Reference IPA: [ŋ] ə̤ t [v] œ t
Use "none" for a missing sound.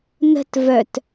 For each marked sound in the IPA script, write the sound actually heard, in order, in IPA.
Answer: n, v

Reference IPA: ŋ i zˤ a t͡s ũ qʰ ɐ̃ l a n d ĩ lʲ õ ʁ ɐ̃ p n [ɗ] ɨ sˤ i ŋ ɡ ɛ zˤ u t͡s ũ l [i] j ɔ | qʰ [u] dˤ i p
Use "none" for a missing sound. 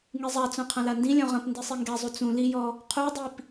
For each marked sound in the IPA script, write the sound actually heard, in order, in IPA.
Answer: d, i, u

